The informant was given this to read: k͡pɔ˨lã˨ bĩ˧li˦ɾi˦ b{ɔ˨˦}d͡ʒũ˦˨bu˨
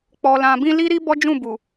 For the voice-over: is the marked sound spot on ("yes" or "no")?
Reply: no